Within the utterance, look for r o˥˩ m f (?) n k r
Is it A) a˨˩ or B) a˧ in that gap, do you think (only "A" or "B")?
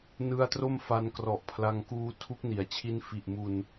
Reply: B